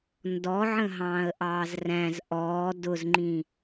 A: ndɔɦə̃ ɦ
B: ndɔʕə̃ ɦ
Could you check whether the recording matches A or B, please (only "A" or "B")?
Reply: B